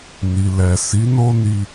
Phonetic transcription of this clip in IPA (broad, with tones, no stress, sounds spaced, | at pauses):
n i˨ l ɛ˨ s i˨˦ n o˦ n i˧